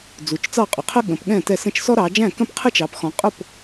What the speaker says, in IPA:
d͡zu˨˦t͡ʃt͡sɑ˥˩qʼʊ˨˦qʰə˥ ɠə̃ː˨˦pɠɛ̃ː˥˩tɛ˥˩ sə̃˥˩t͡ʃsɔ˥ɾɑː˨˦ d͡ʒæ̃˥˩kə̃˥˩p qʰə˥t͡ʃɑ˨˦pxɔ̃˨˦ qʼʊ˥˩p

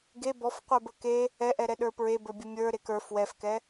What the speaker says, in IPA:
ɡe bɔfqʷə˞bə ke | ɛʔɛɾɛ ɗə˞pɹebə˞ bʲəmʲə˞ ɾekə˞ fwɛfkɛ

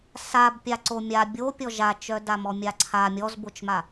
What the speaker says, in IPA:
sab pʲaǀomʲa bʲo pʲɔʒat͡ʃœ damɔmʲaǀʰa mʲɔzbot͡ʃma

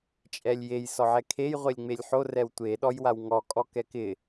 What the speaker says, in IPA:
t͡ʃʼɛlʲjej sɔʕɛkʰej ʁʷelʲŋ͡melʲħo rɛwtʷe ɗɔjwawŋɔ kʼɔkɛkɪ

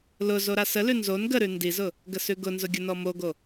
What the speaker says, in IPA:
lʊ zoɾasəlʉ nzon ɡəɾʉ ndizʊ | ɡəsʉɡʊnzʊ ɡʲʊnɔmoɡo

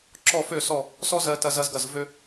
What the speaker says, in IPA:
ǁɔ˥˧fø˥˧ sɔ˥˧ | sɔ˥ zɜ˥tɐ˥zɐ˥zɡɐ˥˧z vø˥

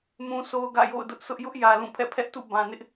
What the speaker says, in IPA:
mũ˦sʰo˦ʊ̯ɡä̰˦˨ jo̰˦˨ʊ̯dʊ˦ʔsʰʊ˦ʔ jʊ˦ʔjä˨ lũ˦˨pʰɛ̰˦˨ pʰɛ˦ʔtṵ˦˨ bã˨nɪ˦ʔ

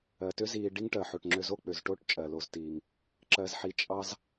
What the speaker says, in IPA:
ɜ˩tʏ˦ ziː˨ ɖi˦ŋʈɜ˩ ħo˩ʈŋ͡ǁʏ˨zo˦ k͡pʏ˩zʈo˥ʈ t͡ʃʼɜ˩lo˨ztiː˩ŋ | ǁɜ˨zħi˨ t͡ʃʼɑ˥z

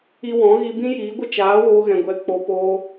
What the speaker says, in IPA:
i˧wɔ̃˨˦ɣi˧ bĩ˦jiː˨˦ɡʷə˦ t͡ʃaː˨˦ woː˧ɣɛ̃˨ ɡʷɛ˨k͡po˨ poː˧

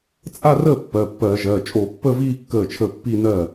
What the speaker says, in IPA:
t͡sʼa˥˧rəː˥˩ pːɜ˩˧˩pːɜː˧˩˧ʒɜː˩˧˩ t͡ʃʼo˧˩˧pːəː˥˧viː˥˧ kːəː˥˩t͡ʃʰəː˥˩ pːi˥˧nɜ˥˩

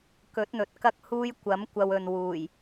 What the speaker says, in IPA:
kɵ˨˥t̚n̪ɵ˨t̚ kɐ˥k̚huː˥j kʷɐ˨˥m kʷɐ˧wɵ˨nwuː˨˩j

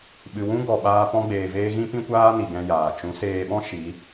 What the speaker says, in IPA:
ɓɨ˨wũ˦ ɡɔ˨ɓaː˧ pɔ̃˧ɡ͡beː˨veː˧ ɣĩ˦pĩ˦kʷaː˦ni˨ ɡɛ̃˧jaː˨ t͡ʃũ˨˦seː˧ɓɔ̃˦ ʃi˨˦

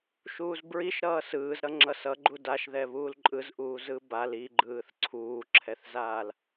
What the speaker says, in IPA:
ʃuːzbɹiʃ ɾʌːsɯːzɾʌ ŋ͡ǁʌsʌ ɡ͡ǃudaʃ ðɛβuːlǃʼɯzʔuː zɯbal iɡ͡ǃɯːθ ǀʰuːǁʰɛθzaːl

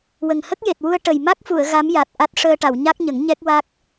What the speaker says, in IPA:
wə˨˩ŋhə˦˥k̚ je˨˩t̚wu˧ə̯ ʈə˨˩j ma˦˥k̚fu˨˩˨ə̯ ɣa˧˥mja˨˩t̚ ʔa˦˥t̚ ʂəː˧ʈa˨˩˨w ɲa˦˥k̚ɲə˨˩˦ŋ ɲɛ˦˥k̚wa˦˥k̚

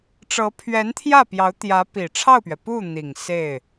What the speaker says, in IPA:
ʈ͡ʂɤ˧˥pʰɥɛ˧˥nt̪ʰjä˥˩pjɑ˧˥ʊ̯ t̪jä˧˥pi˨˩ ʈ͡ʂʰɑ˥˩ʊ̯pɥɛ˩pu˥˩ n̪i˨˩ŋ se˥˩ɪ̯

